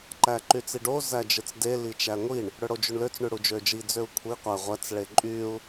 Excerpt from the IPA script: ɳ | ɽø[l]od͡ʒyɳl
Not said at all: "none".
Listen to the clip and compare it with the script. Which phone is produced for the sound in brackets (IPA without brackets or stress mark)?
ɽ